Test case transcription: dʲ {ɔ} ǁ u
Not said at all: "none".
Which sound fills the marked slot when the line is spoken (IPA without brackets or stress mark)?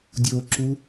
o